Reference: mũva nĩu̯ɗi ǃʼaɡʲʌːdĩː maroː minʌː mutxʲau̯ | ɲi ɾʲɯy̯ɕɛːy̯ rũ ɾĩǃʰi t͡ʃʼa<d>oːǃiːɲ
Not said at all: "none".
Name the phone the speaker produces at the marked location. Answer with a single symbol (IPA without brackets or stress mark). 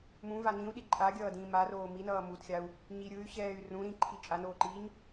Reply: n